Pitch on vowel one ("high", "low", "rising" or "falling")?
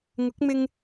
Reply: rising